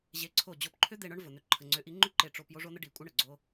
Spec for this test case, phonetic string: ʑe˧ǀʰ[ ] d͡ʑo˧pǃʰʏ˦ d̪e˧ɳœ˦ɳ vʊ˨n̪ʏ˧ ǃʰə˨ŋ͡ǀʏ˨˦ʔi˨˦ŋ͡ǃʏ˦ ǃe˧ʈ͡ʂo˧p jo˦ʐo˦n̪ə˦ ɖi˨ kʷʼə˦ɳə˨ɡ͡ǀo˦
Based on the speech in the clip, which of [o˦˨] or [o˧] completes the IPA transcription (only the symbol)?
o˦˨